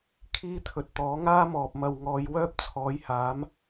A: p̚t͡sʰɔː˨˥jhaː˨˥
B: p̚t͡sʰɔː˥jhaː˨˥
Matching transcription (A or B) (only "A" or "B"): A